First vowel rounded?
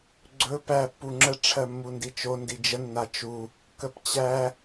yes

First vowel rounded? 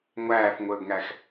no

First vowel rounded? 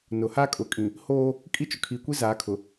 yes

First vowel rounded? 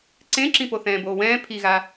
no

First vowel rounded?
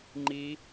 no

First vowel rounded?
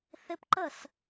no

